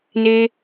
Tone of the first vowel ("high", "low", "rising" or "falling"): high